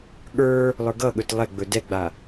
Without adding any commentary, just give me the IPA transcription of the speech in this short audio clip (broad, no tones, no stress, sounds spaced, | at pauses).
ɠ ə˞ | lˠ ə˞ ɡ ʌ ɠ ɵ t lˠ ɛ ɡ͡b ɵ d ɛ ɡ͡b a